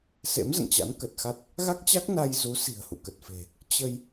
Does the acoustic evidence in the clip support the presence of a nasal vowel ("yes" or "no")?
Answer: no